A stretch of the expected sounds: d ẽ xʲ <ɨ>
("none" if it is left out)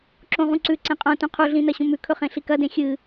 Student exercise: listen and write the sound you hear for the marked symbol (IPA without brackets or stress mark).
ɨ